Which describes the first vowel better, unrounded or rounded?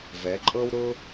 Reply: unrounded